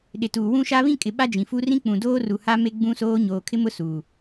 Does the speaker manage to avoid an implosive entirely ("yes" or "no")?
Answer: no